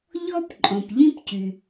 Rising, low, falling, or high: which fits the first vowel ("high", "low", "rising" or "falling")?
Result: high